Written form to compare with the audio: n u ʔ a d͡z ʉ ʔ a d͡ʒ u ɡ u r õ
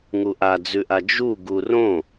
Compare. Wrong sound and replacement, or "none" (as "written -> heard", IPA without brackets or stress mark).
n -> ŋ